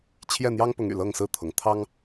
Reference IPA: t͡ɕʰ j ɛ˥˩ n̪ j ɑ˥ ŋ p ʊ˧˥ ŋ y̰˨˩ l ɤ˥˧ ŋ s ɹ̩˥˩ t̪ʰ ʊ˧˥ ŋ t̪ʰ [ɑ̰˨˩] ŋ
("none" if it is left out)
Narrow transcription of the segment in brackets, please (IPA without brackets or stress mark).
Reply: ɑ˥